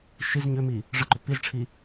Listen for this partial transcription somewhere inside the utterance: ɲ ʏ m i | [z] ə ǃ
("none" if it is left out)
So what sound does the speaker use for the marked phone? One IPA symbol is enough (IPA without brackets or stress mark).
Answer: ʐ